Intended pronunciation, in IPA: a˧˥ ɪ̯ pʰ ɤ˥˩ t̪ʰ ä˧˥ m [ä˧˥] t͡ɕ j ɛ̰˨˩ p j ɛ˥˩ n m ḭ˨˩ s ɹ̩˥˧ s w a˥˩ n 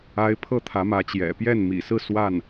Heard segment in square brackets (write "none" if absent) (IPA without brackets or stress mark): ä˧˥